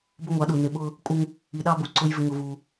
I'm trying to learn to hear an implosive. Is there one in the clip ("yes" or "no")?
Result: yes